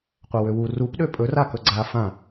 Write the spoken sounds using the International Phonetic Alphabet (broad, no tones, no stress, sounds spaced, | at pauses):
qʷ a w ø w u r u p ɗ ø pʼ ɵ r a k ɵ ɡ͡ǀ a f ã